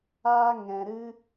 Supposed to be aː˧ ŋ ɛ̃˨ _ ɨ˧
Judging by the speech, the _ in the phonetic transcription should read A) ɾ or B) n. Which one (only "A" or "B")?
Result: A